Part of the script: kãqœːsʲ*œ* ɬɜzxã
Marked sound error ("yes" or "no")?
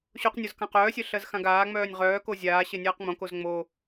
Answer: no